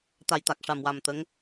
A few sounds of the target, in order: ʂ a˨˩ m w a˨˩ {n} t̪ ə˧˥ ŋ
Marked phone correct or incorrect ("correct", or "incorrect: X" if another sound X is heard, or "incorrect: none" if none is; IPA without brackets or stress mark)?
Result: incorrect: m